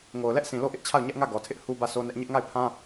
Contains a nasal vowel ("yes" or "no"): yes